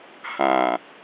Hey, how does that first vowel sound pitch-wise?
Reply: low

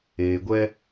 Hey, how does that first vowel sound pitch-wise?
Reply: low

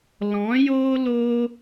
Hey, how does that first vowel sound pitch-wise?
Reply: rising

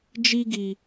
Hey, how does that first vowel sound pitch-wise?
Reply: high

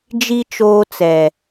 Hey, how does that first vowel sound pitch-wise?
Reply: high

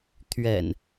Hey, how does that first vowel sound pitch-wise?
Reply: low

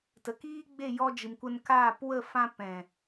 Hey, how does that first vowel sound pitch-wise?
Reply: low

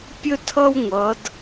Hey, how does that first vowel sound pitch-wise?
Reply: high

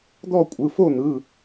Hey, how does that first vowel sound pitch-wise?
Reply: falling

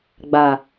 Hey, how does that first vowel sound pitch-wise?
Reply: low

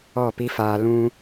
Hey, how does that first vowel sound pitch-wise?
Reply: falling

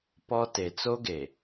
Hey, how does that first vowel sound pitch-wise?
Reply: high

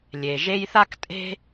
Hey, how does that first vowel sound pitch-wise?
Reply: low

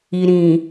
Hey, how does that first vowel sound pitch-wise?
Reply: low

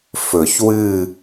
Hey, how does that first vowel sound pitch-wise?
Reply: low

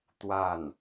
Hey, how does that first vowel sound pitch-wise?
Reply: falling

